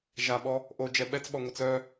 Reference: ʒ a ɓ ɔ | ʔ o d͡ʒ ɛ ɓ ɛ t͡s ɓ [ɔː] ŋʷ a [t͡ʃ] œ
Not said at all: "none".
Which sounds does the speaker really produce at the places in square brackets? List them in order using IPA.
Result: ɔ, t͡s

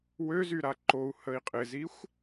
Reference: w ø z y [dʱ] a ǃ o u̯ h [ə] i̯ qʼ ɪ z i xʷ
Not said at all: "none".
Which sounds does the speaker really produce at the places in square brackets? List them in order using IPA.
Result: ɾ, ə

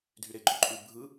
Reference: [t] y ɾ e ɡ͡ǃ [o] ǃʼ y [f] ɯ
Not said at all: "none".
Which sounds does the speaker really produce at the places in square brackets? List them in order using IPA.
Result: dʱ, o, bʱ

